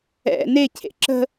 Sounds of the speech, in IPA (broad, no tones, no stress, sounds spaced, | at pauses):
ɛ̰ n e cʰ ḛ ǁ ə̤